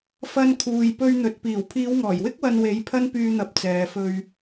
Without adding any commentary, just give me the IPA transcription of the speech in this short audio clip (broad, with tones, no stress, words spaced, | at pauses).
fɐ˧n kʰuː˨jpɵ˧ɥn̪ɵ˨t̚ piː˨˩wpʰiː˨˧wŋɔː˨˩jwɪ˥k̚ wɐ˧nwe˨˥j pʰɐ˥npyː˧ n̪ɐ˨p̚ t͡sɛː˨fɵ˧ɥ